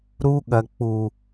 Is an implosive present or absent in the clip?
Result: present